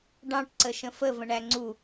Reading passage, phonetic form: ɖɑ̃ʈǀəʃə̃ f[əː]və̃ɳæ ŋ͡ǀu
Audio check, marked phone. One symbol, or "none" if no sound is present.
ə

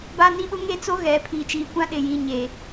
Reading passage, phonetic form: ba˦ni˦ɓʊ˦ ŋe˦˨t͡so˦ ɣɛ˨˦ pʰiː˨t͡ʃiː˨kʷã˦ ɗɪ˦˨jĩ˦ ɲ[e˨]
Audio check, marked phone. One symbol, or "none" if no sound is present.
e˨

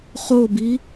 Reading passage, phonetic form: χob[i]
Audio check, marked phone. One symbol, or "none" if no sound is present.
i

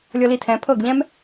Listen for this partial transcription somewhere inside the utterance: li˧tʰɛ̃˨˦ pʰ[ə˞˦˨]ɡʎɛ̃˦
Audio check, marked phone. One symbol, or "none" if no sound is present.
ɤ˦˨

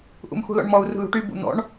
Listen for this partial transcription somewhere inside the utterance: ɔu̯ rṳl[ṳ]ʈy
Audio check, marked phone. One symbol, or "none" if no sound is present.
ṳ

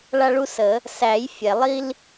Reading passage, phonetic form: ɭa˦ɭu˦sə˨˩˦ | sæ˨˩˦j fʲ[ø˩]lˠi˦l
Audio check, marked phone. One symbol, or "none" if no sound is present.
ɛ˩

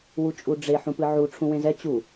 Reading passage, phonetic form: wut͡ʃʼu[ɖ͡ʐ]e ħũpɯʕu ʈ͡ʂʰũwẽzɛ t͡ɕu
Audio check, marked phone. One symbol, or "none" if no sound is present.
ɖ͡ʐ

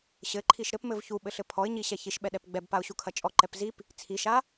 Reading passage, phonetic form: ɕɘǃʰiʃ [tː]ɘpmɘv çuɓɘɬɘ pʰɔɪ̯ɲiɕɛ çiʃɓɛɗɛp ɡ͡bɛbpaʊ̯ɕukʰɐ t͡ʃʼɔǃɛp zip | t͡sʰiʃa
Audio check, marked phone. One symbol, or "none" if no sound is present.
ɾ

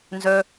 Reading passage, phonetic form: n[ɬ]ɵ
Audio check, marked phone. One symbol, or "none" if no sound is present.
z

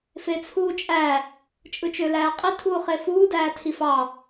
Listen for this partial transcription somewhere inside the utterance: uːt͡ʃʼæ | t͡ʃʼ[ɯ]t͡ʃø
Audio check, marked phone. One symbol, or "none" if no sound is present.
ɯ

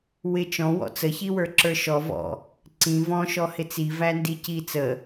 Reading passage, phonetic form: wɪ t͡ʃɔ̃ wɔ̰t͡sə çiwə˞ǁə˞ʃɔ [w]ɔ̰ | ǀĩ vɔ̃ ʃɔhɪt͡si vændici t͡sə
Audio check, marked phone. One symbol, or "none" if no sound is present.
v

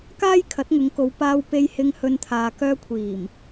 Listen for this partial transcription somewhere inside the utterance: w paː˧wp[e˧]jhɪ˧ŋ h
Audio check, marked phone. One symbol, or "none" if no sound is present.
e˧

